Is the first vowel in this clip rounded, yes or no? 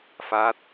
no